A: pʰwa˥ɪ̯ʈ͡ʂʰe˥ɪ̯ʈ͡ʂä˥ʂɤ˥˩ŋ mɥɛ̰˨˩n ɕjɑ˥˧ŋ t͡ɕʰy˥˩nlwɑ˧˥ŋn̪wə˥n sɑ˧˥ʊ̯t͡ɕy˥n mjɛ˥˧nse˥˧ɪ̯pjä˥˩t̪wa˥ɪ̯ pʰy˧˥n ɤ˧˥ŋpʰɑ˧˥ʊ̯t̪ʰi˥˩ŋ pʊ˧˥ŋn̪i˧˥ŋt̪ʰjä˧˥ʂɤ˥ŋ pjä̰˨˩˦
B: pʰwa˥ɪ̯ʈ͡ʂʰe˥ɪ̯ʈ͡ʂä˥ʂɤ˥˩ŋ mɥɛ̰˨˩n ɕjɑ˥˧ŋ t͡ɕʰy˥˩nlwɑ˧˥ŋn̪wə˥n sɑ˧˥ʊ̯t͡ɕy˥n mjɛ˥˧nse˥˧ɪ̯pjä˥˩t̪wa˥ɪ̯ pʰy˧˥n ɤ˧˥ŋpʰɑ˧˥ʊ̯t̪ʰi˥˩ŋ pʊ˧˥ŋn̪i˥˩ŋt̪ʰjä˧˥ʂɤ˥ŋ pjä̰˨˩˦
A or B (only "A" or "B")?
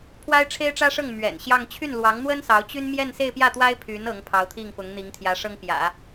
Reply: A